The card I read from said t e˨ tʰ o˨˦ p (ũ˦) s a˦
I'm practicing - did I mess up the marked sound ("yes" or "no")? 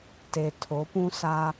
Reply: no